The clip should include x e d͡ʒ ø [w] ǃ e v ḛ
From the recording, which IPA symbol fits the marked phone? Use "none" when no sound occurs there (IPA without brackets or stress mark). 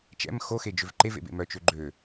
v